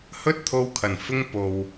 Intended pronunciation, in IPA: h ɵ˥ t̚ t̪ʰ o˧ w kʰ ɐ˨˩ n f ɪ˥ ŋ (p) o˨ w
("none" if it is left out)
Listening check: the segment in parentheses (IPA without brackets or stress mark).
p